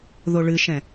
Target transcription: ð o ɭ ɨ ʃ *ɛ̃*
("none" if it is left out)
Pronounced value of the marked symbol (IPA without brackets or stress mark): ɛ̃